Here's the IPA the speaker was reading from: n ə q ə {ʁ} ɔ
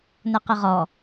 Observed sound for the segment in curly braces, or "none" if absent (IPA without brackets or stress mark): ʁ